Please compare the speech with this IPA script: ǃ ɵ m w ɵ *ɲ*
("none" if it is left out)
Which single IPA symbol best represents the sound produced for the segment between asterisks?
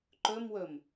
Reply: m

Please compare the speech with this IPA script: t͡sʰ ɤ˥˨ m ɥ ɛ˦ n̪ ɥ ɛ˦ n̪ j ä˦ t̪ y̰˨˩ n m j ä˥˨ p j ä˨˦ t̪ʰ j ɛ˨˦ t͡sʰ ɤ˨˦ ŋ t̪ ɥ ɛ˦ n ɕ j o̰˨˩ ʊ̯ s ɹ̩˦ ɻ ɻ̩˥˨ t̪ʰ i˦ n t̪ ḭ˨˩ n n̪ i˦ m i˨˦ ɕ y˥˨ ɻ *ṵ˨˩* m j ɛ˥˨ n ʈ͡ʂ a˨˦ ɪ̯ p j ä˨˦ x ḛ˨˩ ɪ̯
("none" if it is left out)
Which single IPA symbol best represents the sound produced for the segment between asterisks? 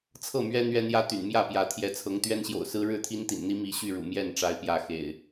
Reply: ṵ˨˩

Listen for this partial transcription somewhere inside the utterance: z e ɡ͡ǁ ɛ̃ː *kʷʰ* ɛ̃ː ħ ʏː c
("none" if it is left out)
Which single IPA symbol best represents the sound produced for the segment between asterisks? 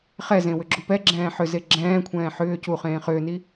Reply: kʷʰ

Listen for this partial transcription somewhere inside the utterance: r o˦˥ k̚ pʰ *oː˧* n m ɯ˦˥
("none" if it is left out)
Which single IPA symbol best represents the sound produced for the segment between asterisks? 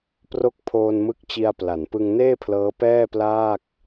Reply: oː˧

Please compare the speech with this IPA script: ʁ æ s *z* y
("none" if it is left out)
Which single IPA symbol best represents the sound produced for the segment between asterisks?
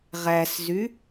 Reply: z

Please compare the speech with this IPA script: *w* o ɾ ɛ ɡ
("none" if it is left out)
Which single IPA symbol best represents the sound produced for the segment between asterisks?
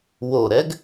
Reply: w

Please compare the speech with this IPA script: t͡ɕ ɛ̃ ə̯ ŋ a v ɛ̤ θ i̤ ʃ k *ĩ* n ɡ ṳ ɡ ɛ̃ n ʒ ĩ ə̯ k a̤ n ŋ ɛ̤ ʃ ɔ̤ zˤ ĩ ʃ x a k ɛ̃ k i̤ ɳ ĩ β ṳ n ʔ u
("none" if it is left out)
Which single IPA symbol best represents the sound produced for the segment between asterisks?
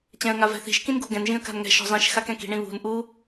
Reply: ĩ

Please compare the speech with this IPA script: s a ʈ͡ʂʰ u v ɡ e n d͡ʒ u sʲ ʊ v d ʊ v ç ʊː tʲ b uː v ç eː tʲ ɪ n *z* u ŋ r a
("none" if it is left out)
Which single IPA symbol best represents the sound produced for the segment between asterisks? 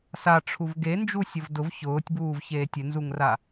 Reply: z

